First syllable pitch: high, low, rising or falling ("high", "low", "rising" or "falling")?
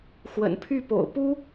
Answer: low